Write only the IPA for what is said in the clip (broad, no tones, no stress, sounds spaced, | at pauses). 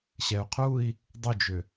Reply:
ɕ ɛ u̯ qʰ u i̯ | dˤ ʏ d͡ʒ ʏ